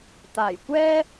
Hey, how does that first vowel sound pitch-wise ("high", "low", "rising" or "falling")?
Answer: low